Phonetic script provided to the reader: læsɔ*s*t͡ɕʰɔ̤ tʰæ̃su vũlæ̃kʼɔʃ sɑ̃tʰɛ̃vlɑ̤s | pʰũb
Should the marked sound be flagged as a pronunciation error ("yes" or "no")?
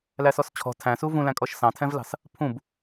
no